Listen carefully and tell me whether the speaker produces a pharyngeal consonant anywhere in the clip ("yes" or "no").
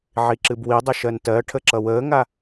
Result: yes